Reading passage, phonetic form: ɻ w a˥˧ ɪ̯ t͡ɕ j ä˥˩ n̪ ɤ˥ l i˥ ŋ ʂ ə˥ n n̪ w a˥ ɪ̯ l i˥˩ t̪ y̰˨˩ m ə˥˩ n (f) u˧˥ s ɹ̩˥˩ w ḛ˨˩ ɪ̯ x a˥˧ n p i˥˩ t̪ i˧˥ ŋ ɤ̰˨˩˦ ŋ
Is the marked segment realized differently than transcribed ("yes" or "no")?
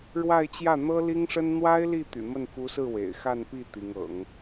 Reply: no